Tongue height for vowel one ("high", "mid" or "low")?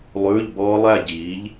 high